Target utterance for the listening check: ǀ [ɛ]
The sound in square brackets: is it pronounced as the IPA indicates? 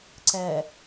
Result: yes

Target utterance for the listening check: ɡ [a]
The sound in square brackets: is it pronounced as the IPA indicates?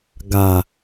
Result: yes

